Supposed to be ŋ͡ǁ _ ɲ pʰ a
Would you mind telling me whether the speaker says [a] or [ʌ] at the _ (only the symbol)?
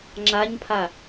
a